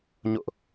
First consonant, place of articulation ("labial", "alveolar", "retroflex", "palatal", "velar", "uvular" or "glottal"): palatal